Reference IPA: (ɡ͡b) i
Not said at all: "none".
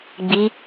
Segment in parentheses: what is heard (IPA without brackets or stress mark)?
ɡ͡b